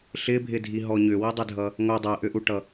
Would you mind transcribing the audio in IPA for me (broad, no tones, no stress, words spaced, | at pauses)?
ɬɪbʱɪdʱiɦɔ ɲʏwidˤɪdʱʌ | ŋʷɛ dˤɛʔʏʔuʈʌ